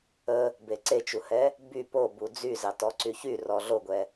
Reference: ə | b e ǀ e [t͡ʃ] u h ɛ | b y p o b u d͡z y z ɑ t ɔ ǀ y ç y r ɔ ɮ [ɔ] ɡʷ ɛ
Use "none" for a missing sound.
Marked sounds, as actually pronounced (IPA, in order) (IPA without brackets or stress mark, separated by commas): t͡ʃ, o